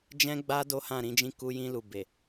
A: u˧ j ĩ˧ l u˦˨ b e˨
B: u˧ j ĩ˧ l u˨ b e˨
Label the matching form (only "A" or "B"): B